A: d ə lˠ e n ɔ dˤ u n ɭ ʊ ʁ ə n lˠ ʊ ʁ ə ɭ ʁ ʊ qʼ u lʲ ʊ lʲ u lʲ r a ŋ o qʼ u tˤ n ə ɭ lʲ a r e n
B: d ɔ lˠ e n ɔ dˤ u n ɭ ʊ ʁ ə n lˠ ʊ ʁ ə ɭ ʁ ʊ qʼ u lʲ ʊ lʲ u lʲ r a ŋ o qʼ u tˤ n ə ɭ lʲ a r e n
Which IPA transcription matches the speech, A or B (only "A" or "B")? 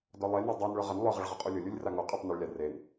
B